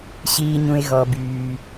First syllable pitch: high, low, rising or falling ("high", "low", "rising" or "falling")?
low